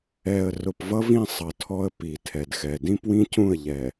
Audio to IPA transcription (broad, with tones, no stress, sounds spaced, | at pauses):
ɛ˨ ə̯ r ʊ˨ p v ʌ˦ v ĩ˦˨ sˤ ʌ˨ tʰ ɔ˦ ə̯ p i˨ tʰ ɛ˨ d x ɛ˨ d ĩ˦ p w ĩ˦ c ũ˦˨ ə̯ ʎ ɛ˨